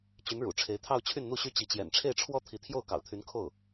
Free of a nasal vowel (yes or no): yes